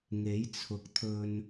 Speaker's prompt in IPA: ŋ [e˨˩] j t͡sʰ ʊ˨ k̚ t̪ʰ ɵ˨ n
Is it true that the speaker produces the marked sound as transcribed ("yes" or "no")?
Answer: no